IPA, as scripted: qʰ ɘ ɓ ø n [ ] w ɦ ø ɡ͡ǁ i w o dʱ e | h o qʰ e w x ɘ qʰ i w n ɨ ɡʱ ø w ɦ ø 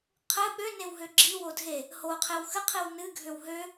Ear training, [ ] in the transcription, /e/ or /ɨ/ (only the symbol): e